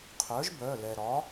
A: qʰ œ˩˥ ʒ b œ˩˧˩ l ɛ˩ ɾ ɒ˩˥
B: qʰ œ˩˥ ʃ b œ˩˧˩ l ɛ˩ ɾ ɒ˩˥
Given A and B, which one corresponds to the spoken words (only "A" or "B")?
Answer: A